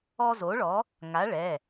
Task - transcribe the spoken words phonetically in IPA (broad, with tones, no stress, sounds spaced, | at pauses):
ɔ˦ z o˨˥ ɭ ɔ˨˥ | ŋ a˨˥ ɭ ɛ˩˧˩